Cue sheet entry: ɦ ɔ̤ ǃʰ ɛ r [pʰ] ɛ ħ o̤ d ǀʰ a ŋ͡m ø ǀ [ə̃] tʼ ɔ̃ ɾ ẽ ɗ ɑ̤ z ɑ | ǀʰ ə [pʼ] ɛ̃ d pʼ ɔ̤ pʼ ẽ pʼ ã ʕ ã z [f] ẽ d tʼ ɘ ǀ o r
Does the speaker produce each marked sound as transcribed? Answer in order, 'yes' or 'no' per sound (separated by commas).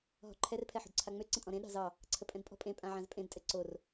yes, yes, yes, no